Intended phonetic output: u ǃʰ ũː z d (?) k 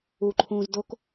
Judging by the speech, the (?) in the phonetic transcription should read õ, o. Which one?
o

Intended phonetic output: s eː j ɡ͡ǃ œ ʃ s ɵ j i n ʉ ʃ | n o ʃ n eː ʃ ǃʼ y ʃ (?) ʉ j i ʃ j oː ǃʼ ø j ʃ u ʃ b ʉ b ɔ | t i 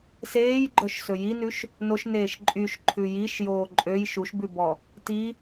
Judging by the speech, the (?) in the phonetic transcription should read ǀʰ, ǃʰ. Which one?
ǃʰ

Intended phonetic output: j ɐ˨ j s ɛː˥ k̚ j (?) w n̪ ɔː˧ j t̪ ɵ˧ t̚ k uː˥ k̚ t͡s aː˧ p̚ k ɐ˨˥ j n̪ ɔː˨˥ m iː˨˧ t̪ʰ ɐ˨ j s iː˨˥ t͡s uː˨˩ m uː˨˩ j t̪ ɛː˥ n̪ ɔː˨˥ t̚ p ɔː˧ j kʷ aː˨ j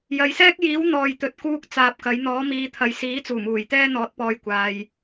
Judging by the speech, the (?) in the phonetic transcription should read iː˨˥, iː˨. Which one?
iː˨˥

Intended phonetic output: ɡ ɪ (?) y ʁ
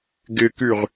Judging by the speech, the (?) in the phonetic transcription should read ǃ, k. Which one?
k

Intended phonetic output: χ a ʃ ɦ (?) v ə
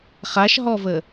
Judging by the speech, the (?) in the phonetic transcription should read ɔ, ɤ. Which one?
ɔ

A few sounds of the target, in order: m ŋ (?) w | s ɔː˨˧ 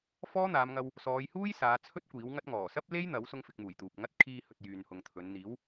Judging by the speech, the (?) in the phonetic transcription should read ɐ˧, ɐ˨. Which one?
ɐ˧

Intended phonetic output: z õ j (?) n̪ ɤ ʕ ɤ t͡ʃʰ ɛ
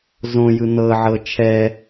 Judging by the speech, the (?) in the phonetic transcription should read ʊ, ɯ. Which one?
ɯ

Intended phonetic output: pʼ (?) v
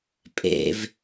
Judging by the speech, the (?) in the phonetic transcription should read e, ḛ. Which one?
ḛ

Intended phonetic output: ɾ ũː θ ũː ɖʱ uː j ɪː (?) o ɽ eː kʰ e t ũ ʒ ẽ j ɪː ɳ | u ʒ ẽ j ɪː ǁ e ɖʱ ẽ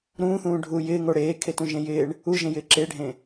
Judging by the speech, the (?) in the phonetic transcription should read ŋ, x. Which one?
ŋ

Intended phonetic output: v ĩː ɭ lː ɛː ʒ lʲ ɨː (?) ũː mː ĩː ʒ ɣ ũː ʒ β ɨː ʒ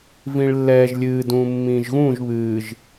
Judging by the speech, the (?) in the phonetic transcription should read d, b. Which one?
d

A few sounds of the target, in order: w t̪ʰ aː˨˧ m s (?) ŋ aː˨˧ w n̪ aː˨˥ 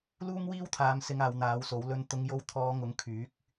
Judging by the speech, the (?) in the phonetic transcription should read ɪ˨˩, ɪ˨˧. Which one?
ɪ˨˧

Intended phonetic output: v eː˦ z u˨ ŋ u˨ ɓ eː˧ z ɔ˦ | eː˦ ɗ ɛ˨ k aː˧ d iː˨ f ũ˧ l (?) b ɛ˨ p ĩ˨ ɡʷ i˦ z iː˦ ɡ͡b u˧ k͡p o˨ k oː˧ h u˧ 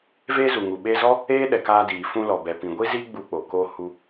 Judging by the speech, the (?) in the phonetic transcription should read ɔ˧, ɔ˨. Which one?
ɔ˨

